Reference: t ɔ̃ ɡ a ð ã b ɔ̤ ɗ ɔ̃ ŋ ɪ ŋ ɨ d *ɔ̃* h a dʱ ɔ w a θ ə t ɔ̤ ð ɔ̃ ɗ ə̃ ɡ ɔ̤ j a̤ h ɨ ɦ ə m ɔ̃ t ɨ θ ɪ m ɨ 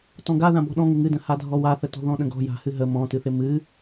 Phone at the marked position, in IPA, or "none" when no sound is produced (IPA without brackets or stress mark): ə̃